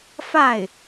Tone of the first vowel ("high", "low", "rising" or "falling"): falling